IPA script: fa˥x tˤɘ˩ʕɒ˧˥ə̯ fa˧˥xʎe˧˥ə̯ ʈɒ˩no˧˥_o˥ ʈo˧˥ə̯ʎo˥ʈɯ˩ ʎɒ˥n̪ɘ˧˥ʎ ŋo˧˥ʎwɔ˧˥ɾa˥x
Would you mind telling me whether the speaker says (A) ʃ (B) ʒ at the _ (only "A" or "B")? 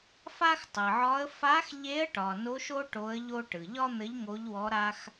A